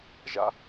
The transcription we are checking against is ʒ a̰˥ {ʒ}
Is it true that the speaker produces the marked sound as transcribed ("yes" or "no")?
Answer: no